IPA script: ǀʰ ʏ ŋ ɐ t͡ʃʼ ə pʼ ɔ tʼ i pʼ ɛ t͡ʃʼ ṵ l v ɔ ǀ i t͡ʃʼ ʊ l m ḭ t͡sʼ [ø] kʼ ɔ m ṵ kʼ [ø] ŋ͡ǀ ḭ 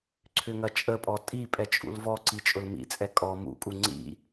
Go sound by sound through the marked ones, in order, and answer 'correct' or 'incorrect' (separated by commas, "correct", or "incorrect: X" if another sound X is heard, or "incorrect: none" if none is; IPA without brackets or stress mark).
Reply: incorrect: ɛ, incorrect: u